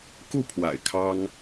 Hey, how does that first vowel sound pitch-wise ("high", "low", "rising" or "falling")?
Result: falling